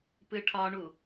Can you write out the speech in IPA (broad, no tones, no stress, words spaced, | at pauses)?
pɨʈʰɒɳu